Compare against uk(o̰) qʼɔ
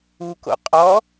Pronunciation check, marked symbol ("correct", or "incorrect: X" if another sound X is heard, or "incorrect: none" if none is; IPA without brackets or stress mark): correct